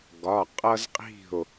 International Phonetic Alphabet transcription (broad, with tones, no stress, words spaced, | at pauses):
ɡɒ˩˧˩ qʼʌ˦zqʼi̤˥˩o̯